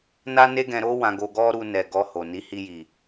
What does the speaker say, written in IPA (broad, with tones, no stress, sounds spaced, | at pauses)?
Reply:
n a˦ n e˦ ɡ ɛ̃˧ ɾ o˦ w ã˧ ɡ o˧ ɡ ɔ˦ ɾ u˧ n ɛ˨ ɡ ɔ˧ h o˨ n i˨˦ h i˧ j i˨